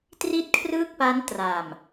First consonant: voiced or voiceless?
voiceless